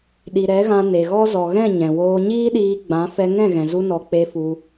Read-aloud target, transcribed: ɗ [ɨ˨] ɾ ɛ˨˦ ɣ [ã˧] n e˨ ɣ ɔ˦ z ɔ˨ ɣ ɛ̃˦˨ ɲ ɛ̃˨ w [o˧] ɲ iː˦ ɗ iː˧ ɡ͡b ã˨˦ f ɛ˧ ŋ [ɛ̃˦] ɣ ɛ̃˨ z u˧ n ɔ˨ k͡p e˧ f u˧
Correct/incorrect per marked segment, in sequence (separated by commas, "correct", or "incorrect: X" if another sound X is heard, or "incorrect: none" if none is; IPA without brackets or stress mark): incorrect: i˨, correct, incorrect: oː˧, incorrect: ɛ̃˦˨